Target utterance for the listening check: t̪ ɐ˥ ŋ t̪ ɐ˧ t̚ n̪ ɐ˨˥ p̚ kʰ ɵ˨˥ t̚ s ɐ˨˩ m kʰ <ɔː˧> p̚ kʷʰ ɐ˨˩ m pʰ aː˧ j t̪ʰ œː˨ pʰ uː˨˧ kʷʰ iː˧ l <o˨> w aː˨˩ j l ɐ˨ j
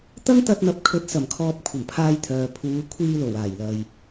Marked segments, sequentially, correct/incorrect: incorrect: ɔː˨, incorrect: o˨˩

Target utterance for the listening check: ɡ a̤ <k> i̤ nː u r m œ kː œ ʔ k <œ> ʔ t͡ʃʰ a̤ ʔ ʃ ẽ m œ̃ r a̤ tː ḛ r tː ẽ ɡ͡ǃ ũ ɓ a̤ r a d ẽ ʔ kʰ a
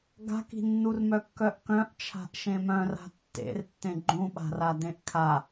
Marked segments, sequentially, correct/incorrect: correct, incorrect: œ̃

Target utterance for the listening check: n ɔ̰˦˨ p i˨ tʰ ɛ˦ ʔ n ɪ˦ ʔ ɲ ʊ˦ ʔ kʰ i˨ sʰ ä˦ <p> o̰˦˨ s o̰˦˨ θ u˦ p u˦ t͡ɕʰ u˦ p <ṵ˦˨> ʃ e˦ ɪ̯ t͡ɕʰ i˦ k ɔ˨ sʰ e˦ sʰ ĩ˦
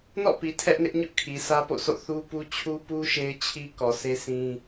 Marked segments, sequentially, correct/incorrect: correct, incorrect: u˦

